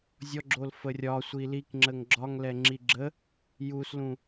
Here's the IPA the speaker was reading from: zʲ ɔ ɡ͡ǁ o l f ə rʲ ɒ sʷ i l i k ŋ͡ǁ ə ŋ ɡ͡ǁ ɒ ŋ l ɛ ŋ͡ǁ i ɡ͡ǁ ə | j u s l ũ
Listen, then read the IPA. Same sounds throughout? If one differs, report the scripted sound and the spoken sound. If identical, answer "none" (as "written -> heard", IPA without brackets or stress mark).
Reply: none